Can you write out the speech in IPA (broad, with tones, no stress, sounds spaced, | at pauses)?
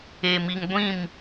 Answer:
e˨ m i˨ ŋ ɡʷ ĩ˦˨ m